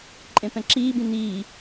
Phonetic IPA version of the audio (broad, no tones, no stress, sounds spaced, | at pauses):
ǃʼ ẽ p ɛ̃ ǁ iː b ĩ n iː